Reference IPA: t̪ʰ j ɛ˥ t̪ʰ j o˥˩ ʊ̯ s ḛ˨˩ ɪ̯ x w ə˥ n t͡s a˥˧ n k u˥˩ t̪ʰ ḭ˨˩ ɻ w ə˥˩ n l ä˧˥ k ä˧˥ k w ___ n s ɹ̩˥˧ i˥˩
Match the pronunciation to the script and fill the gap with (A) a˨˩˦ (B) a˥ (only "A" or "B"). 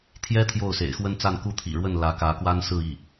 B